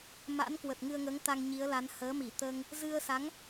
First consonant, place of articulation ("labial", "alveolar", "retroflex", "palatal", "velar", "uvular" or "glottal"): labial